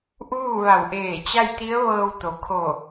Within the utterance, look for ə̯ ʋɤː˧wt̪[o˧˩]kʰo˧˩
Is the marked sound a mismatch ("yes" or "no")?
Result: yes